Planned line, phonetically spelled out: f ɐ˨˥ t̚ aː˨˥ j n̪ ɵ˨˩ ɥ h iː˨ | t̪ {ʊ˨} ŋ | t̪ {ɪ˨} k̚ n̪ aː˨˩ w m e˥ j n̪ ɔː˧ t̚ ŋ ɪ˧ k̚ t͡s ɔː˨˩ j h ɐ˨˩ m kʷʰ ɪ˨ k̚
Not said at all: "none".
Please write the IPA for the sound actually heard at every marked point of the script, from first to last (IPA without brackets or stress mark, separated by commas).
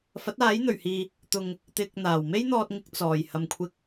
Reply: ʊ˨, ɪ˨